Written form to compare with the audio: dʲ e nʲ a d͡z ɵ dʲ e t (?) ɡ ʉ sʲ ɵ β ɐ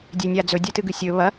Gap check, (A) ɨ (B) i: A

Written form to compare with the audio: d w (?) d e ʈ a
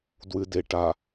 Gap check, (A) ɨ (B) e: A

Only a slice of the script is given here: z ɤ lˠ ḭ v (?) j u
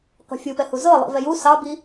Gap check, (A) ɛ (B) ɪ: A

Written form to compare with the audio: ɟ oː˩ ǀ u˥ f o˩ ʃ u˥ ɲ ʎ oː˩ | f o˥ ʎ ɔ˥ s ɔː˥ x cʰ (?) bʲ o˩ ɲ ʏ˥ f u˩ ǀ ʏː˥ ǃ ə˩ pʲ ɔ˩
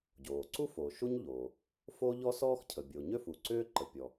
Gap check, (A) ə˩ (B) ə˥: A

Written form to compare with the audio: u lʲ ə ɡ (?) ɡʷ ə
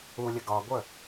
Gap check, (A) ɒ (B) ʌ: A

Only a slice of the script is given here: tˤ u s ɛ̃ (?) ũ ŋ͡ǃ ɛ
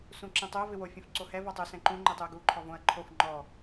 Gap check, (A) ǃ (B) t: A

